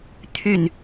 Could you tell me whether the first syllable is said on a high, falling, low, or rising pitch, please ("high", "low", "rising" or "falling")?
low